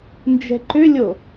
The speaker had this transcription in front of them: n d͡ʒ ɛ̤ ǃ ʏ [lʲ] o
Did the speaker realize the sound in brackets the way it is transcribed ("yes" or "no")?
yes